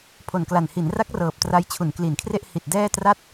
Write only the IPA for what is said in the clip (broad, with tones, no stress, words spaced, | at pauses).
pʰo˨˩nkla˨˩nhi˩˦n ra˦˥k̚rɤː˨˩p̚ tra˧jt͡ɕʰu˩˦nkli˩˦nkʰre˥˩ʔ hi˨˩t̚dɛː˥˩tra˥˩t̚